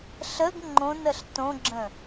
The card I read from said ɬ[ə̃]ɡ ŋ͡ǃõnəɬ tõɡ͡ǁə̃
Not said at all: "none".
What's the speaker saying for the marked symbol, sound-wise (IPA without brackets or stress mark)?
ə